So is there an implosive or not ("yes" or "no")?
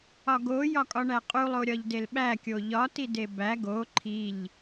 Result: yes